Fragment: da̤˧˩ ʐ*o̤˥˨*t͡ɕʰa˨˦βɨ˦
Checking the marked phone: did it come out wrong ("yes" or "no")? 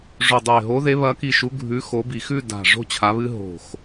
no